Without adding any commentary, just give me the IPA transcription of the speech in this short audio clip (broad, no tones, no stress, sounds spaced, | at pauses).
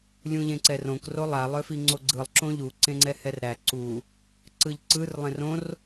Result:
lʲ ũ ʎ ẽ ǀ ɛ r õ k r o lˠ a lˠ œ f i ŋ͡ǀ o ɡ͡ǀ ɯ lˠ ǁ õ ʎ u ǀ ẽ ŋ͡ǀ ɛ h ɛ r ɾ æ ǀ u | ǀ ɯ ʎ ǀ ɯ r lˠ ẽ r õ r